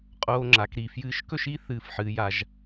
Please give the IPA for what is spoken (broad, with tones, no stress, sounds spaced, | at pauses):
qʼ oː˧ ŋ͡ǁ a˩˧ k ɾ i˧˩ f j ɨː˧ ʃ k ɵ˥˧ ʃ i˥ θ ɨː˧˩ f ħ ɨː˩˧ j a˩˧ ʒ